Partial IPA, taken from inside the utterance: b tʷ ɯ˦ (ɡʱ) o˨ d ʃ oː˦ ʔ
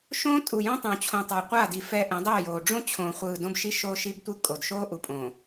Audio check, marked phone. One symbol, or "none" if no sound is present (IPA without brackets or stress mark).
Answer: kʼ